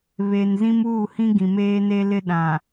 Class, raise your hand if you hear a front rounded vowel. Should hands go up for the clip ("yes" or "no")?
no